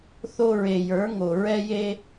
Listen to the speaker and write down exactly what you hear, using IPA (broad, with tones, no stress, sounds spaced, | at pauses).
θ o˧ ɹ e˨ j ə˞˨˦ ŋ o˨ ɹ ɛ˦ j e˦